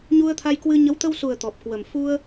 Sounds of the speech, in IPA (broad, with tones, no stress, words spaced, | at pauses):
ɲu˧ə̯t̪ʰa˧jkwɨ˧ ɲə˨˦wt̪ə˧wsu˨˩ə̯ t̪ɔ˨˩p̚kwə˨˩m fu˧ə̯